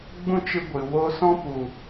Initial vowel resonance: nasal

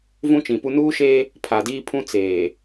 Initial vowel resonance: nasal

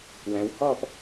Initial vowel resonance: nasal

